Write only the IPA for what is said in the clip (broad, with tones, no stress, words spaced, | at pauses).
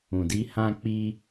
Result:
ũ˨di˧ hã˧k͡pi˧